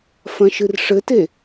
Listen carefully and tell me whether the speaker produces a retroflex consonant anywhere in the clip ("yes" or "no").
yes